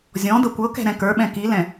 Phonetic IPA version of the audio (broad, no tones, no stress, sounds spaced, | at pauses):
zʲ ɔ̃ d ɤ kʷ ɤ k ɛ̤ ɾ ɛ̃ k ə˞ ɓ ɛ̃ k i l ɛ̃